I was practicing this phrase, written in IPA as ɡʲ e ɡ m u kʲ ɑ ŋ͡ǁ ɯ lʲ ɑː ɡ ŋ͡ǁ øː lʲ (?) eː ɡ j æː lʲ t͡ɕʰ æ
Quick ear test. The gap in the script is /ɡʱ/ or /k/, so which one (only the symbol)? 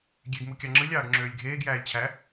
ɡʱ